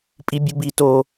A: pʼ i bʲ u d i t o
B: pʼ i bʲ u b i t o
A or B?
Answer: B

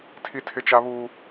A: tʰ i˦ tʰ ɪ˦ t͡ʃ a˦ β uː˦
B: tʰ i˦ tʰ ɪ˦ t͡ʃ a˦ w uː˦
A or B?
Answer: A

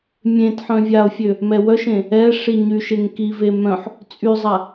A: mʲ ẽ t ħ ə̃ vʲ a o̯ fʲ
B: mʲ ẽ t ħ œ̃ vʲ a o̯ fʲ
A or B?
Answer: B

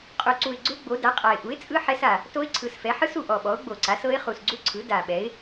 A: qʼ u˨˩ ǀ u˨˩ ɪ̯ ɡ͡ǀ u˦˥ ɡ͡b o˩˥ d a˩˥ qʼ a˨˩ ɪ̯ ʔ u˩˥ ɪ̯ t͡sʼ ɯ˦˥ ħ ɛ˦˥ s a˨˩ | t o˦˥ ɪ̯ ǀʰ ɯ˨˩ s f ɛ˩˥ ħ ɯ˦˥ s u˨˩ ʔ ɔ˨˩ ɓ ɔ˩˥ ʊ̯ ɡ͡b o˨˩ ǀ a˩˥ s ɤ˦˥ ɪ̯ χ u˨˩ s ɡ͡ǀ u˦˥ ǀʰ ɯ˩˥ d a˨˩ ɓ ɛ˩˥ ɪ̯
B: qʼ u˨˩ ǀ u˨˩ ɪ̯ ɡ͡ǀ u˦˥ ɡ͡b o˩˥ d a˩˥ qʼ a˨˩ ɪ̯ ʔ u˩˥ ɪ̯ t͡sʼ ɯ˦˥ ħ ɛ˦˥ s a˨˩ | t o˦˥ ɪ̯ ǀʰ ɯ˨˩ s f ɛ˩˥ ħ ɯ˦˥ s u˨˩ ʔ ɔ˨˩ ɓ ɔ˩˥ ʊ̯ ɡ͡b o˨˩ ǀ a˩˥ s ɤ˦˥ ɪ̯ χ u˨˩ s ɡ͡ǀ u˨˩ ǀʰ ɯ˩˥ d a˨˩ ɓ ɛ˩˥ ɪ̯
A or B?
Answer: A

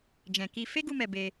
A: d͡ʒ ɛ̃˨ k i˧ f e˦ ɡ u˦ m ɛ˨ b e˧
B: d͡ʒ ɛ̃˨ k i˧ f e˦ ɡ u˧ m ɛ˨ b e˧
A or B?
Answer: B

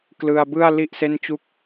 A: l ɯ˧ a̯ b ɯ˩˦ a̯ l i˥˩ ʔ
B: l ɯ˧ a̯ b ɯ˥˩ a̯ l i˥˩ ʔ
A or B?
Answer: B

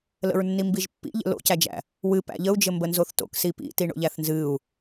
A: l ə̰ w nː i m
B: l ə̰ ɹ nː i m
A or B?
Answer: B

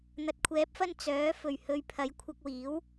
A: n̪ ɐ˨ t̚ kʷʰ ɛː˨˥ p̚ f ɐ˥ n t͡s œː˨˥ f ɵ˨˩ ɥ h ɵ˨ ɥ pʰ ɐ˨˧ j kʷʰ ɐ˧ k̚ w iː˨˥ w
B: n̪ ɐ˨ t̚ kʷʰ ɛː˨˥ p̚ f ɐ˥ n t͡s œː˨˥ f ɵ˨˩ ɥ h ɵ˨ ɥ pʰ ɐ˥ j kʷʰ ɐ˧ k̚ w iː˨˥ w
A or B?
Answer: A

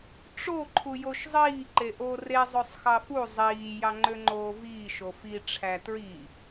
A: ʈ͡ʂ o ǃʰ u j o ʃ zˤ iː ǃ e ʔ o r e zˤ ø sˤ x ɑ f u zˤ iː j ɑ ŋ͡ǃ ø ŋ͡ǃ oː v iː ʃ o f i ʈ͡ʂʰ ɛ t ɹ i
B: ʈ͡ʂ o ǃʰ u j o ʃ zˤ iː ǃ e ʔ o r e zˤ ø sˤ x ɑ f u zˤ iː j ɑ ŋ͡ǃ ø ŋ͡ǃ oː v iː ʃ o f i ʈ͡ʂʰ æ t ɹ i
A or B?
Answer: B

